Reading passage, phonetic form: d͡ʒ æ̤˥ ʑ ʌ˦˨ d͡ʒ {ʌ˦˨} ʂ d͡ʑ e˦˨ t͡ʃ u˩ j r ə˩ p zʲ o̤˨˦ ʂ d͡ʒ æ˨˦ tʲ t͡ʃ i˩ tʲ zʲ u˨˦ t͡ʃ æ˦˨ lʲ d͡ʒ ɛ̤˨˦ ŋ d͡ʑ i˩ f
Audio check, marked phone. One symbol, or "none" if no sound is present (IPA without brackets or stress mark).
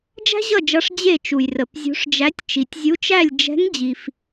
ʌ˨˦